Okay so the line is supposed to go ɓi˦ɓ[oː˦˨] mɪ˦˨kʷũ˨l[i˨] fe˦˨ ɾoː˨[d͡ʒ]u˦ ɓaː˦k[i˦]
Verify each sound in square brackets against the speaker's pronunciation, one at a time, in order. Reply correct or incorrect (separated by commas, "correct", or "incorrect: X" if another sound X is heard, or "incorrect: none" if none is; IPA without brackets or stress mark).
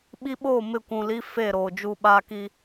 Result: correct, incorrect: i˦, correct, correct